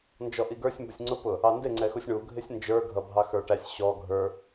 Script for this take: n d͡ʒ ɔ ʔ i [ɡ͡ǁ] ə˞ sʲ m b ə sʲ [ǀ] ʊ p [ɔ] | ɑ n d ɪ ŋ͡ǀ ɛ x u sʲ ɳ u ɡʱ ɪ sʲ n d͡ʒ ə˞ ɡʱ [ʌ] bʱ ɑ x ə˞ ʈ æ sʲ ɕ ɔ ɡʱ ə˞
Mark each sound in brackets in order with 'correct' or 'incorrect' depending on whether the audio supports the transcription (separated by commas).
incorrect, incorrect, incorrect, correct